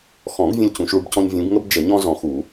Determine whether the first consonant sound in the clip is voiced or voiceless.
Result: voiceless